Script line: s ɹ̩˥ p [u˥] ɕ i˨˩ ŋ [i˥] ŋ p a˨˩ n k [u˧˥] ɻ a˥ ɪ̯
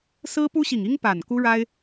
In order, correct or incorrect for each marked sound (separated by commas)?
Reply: correct, correct, incorrect